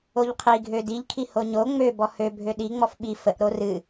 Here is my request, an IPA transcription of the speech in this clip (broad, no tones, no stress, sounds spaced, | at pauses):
o ʎ qʰ i ɡʱ ø d i ʎ kʰ i h o ɲ o ŋ͡m ø b ɔ h ø bʱ ø ɗ i ŋ͡m ɔ f ɓ i f ə ʔ ɾ o r ɨ